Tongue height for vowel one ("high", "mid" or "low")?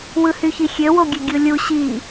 high